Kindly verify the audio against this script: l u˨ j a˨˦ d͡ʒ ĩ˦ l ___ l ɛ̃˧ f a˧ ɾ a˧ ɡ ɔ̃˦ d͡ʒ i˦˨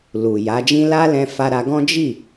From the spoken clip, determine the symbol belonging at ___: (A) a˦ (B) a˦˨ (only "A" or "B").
A